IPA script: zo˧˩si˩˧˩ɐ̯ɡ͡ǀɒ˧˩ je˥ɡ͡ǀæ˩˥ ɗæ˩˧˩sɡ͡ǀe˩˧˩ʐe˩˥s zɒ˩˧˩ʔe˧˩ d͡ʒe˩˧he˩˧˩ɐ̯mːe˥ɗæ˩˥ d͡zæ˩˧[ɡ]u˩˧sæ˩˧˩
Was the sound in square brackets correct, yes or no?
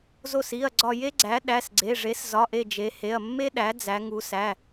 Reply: no